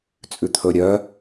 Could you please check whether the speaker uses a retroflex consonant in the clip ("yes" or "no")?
no